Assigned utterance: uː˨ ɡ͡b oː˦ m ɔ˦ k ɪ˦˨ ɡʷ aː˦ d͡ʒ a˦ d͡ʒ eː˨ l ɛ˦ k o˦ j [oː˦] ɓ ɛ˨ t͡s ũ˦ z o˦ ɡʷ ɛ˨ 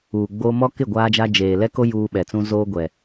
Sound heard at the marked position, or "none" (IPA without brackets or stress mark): uː˦